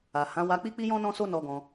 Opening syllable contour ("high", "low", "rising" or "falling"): low